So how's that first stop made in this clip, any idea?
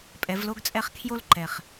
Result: ejective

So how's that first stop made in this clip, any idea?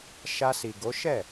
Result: plain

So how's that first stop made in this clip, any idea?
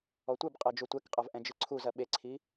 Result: plain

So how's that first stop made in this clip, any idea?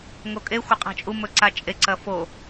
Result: ejective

